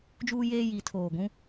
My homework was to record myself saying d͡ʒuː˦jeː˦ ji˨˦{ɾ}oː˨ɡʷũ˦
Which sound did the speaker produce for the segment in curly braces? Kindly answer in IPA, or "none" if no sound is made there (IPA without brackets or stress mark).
tʰ